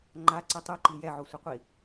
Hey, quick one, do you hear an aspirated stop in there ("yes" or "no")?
no